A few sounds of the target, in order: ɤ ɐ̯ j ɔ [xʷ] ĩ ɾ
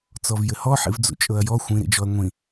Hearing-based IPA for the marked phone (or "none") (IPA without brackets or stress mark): xʷ